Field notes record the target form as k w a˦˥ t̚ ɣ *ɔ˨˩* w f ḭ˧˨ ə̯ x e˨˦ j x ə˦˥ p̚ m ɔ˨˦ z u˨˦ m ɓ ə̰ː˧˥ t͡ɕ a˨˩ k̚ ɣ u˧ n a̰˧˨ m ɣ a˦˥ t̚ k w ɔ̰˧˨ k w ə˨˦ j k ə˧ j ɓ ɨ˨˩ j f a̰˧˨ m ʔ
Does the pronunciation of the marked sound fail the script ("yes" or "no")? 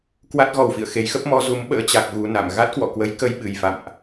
no